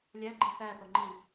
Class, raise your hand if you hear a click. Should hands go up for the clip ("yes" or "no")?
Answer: yes